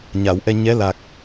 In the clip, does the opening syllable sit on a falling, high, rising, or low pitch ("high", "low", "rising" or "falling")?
low